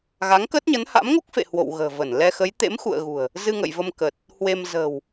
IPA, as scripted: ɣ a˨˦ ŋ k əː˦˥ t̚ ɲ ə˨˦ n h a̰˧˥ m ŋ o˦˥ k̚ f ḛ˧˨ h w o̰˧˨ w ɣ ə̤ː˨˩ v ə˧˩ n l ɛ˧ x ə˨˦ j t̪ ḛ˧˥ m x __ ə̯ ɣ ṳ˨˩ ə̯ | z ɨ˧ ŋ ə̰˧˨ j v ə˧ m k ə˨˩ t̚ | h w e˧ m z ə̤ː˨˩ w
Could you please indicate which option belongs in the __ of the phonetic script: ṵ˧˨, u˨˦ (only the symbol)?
ṵ˧˨